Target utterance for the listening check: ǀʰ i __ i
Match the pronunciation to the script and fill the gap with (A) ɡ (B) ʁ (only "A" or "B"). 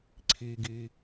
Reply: A